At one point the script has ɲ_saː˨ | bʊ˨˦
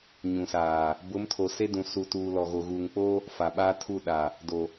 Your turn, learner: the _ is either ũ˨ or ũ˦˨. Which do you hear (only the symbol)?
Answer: ũ˨